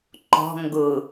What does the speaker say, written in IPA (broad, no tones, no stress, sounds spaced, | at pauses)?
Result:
ǃ ɔ̤ ŋ ɡ ʊ